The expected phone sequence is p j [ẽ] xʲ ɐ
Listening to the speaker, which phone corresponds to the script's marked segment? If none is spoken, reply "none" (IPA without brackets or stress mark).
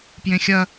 ẽ